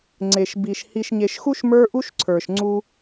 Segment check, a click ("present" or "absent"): present